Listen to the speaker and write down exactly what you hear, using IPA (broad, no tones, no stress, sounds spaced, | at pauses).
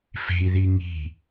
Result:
f e̤ i̯ ð i ŋ i̤